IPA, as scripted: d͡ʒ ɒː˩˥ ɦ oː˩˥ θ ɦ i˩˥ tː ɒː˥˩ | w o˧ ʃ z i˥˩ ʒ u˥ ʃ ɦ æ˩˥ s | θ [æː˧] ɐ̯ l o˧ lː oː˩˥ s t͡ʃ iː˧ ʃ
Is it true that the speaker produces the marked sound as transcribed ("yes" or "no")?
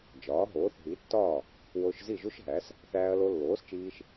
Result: yes